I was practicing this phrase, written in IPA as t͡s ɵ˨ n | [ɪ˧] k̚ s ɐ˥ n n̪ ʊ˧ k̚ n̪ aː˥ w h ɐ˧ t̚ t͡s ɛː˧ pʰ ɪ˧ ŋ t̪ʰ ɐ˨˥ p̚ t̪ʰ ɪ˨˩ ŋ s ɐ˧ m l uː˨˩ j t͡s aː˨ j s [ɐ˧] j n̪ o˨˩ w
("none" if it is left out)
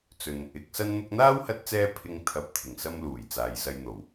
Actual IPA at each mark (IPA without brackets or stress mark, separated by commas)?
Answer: ɪ˨˥, ɐ˧